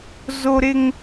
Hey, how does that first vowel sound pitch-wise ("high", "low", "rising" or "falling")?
high